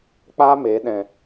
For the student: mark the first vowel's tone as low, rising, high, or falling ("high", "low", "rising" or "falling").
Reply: high